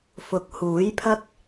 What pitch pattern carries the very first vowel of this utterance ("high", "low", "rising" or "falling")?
rising